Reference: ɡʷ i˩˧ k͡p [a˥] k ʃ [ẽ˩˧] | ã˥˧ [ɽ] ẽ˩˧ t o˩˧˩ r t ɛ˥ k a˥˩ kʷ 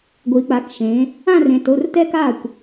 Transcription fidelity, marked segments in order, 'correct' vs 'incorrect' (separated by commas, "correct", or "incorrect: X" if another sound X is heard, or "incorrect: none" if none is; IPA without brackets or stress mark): incorrect: a˩˧, correct, incorrect: r